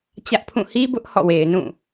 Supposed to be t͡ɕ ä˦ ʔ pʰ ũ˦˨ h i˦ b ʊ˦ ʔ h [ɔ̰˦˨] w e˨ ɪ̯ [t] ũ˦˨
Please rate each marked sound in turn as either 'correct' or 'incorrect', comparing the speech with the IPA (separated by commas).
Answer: correct, incorrect